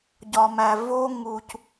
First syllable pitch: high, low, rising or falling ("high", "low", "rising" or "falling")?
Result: low